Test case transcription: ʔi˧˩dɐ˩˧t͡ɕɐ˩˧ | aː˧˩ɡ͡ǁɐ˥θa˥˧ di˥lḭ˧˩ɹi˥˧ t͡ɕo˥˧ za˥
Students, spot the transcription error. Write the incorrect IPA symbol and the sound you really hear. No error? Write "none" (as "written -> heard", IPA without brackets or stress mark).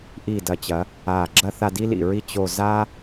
none